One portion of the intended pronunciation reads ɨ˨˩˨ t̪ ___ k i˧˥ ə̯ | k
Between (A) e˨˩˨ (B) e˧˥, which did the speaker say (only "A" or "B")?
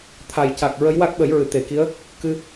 A